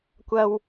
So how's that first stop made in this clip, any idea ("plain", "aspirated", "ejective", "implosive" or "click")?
plain